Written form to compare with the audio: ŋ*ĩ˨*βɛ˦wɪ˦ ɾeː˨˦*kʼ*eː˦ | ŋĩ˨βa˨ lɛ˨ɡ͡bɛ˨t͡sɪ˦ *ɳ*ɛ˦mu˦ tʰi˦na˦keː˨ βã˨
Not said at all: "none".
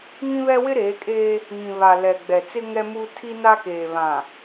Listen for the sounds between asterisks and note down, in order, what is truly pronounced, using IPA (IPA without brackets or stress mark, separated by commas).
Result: ĩ˦, kʼ, ŋ